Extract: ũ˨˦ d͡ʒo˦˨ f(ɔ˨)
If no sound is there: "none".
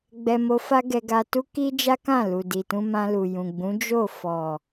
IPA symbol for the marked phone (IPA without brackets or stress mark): ɔ˨